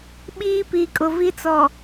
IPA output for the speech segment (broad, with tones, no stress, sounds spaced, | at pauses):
ɓ iː˦ p iː˨ kʼ ʊ˨ v i˦ t͡s ɔ˨